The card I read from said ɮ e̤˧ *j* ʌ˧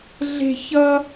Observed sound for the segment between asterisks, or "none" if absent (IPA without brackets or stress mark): ç